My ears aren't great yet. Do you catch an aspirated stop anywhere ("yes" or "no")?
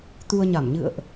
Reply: no